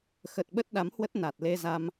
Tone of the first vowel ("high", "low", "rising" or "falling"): low